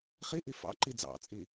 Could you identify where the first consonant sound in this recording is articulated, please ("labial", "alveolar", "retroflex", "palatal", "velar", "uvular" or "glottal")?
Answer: uvular